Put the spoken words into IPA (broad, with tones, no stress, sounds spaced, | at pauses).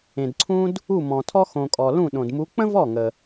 ẽ˨ d ǀʰ ũ˥ d | u˥˩ m ɔ̃˨ tʰ ɔ˥ x õ˨ kʼ ɔ˨ l ũ˥˩ ɗ õ˨ d m u˧˥ k͡p ə̃˥ v ɔ˥˩ ŋ ə˨